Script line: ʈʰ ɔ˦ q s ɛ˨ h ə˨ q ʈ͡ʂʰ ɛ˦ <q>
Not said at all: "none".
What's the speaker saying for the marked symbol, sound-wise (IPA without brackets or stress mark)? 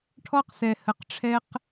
q